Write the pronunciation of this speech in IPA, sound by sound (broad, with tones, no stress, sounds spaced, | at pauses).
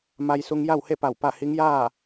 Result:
m a˧ j s u˧ ŋ j a˥˨ w h e˥˨ p a˧˩ w p a˥˨ h i˧˥ ŋ j aː˥˨